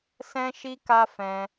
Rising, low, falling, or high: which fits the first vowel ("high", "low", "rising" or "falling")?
high